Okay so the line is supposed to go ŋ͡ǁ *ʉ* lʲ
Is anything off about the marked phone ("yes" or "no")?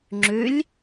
no